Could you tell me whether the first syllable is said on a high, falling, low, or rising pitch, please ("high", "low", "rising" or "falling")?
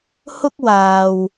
high